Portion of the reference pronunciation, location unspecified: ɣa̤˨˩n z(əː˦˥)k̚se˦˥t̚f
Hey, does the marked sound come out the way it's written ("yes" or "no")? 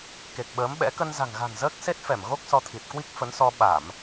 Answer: yes